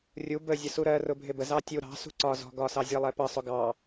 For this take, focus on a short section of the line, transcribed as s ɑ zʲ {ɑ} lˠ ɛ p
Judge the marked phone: incorrect: ʌ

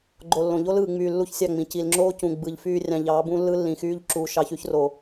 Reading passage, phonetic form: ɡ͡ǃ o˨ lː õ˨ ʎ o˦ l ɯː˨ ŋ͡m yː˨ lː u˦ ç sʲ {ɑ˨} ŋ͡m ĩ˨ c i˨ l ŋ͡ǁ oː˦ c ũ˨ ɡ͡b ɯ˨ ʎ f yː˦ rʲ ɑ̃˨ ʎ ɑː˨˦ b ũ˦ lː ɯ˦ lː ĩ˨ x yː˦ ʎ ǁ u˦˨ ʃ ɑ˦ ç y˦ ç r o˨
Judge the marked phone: incorrect: ɑ˦˨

